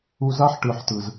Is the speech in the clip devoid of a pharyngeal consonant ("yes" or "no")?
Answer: no